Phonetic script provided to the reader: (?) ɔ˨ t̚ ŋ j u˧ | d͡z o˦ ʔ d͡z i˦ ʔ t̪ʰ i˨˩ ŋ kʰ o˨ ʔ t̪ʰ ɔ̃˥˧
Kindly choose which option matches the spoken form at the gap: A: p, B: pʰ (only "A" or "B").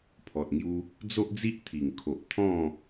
B